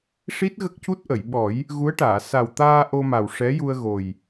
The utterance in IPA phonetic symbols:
ʂi˦˥t̚ ɣə˦˥k̚cu˦˥t̚ʔə˨˩˨jɓɔ˨˩˦j | ɣu˧˥ə̯ʈaː˨˩˨ sa˨˩wt̪aː˧ ʔo˧ma˨˩w ʂɛ˧˥ju˧ə̯ɣo˨˩j

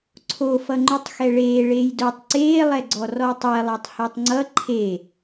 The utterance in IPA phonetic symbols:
ǀʰofʌŋ͡ǃutˤxɛ ɭeːɭeːj dotˤ ǀeːlˠɛɡ͡ǀɔ rɔtˤɛlˠɛtˤ hetˤŋ͡ǀʌ ǃʰe

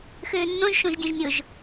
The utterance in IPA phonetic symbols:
xøːnːõʒ ʃõʒdʲõʒnʲʊʒ

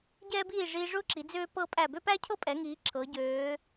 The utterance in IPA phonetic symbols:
ɟɛː˧biː˧˩ ʐiː˧ʐʊː˥ǁi˩˧ d͡zøː˧pɤ˧ pʼæ˧˩bø˥pæ˥cʰɤ˥ pʼɛ˩˧ŋiː˩˧ ǁʰɤ˩˧ɟøː˩˧

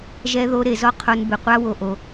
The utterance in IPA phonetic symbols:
ʒɛ˧ðo˧ ɾe˧zɔ˦ qʰo˧nbɪ˨qʷa˦wo˧ ʔo˧

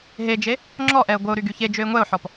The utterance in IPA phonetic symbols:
ɦed͡ʒe | ŋ͡ǁɔʔɛə̯ ɡʷəʊ̯ɾy ɡyçed͡ʒøɪ̯ ŋʷɛʊ̯ħɔp

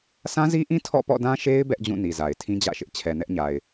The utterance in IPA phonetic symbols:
sã˦zi˦ʔĩ˦ tʰɔ̰˦˨pɔ̰˦˨dã˦ʃe˦ɪ̯ bɛ˦ʔd͡ʑũ˦˨ ni˨za˨ɪ̯ tʰĩ˦d͡ʑä̰˦˨ʃɪ˦ʔt͡ɕʰɛ˨ nɛ˦ʔɲa˨ɪ̯

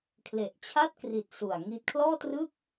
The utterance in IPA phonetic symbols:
kʰle˨˩ʔt͡ɕʰa˥˩t̚kri˨˩t̚ su˨˩a̯ŋi˦˥t̚ kʰlɔː˥˩trɯ˥˩k̚

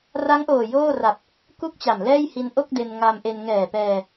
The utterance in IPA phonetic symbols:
ra˦˥ŋʔoː˨˩ joː˥˩ra˨˩p̚ | ku˥˩k̚t͡ɕa˨˩m lɛː˥˩jhi˧n ʔo˥˩k̚de˧n ŋa˧mʔe˧n ŋɛː˨˩pɛː˧

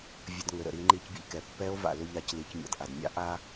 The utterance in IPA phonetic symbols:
vʲə˧d ŋʏ˩ɾə̰˩ ɾi˩˧ŋ͡ǃi˧cbʲə̰˧ʎkɛ˩ pːɛ˧˥o̯ va̰˩lʏ˥ʎa˧c li˩˧cmʲa̰˩dʔa˩dmʲa̰˧˥ ʔa˥

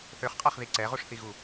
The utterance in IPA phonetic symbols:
θøχqʼaχði ǀɛʁuʂθiɣu

